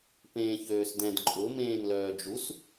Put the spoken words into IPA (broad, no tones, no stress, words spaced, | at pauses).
pẽːçøːsdɛ̃d ǃʼʊ mẽːnlœːd͡ʒus